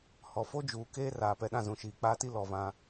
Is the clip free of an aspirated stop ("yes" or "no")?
yes